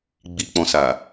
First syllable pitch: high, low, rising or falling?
low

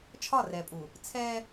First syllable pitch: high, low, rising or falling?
falling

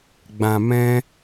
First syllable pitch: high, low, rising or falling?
low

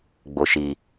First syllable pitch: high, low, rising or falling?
low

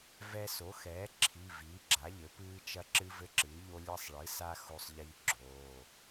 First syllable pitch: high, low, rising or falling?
high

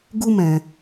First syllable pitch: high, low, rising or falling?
high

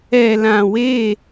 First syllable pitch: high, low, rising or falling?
low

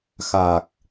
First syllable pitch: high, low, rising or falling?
low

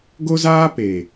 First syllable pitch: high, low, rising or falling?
high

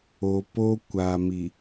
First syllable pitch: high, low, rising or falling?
low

